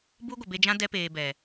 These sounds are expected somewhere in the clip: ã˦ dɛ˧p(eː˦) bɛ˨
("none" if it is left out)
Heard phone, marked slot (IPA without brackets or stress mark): eː˨